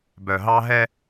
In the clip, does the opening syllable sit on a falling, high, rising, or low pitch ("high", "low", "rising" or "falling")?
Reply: low